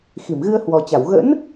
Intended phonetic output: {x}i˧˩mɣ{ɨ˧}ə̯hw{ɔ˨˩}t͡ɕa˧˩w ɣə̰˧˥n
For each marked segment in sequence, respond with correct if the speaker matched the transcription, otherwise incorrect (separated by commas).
correct, correct, correct